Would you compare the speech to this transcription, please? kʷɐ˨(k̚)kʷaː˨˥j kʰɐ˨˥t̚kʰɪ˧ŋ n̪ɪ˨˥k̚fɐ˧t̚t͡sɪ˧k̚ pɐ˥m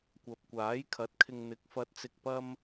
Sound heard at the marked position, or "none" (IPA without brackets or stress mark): p̚